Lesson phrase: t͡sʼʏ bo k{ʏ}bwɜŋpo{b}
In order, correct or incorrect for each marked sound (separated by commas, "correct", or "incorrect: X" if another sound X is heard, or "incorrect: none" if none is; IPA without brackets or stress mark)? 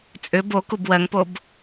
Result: incorrect: u, correct